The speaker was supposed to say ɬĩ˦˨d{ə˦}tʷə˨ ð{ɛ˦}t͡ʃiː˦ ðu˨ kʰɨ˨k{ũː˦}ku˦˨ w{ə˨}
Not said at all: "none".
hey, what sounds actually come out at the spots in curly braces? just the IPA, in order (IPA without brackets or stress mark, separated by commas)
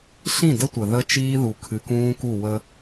ə˦, ə˦, ũː˦, ə˦